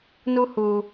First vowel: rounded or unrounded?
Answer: rounded